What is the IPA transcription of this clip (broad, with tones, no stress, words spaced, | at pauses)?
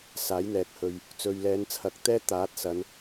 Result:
saː˨˥jn̪ɛː˨k̚hɵ˨ɥ | t͡sɵ˨ɥlɛː˨˧nt͡sʰɐ˨k̚ t̪ɛː˥ t̪aː˨˥t̚sɐ˨˧n